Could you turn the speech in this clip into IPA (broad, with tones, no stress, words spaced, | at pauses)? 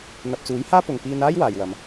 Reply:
n̪ɐ˨p̚t͡suː˨˥jhaː˥pʊ˨ŋ piː˧naː˥j waː˨jwɐ˨˧m